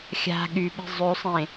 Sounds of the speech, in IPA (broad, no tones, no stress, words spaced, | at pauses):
xʲa̤ ɠyɓe̤ zˤʉsˤẽ